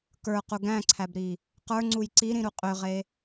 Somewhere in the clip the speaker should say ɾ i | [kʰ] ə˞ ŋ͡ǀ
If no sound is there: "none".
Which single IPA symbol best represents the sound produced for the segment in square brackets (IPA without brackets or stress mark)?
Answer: q